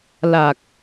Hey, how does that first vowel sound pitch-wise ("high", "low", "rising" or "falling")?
low